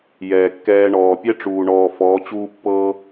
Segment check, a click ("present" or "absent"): absent